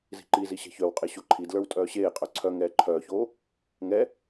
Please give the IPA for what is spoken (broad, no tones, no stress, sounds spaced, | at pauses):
z i̤ ǃ i z i ɕ ɛ̤ ç œ w qʼ e ɕ o ǃʰ i d l ə˞ w tʼ œː ɕ eː qʼ œ ǀʰ œ ŋ ɛː ǃʰ œː ç oː | ŋ ɛ